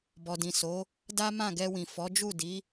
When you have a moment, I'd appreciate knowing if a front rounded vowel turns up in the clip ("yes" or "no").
no